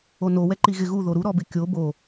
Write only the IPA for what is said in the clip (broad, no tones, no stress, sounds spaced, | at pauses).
o n o w ɛ ǃ i ɣ ɪ ɣ u ð o ɾ u ɾ ɔ b ɪ kʲ o b o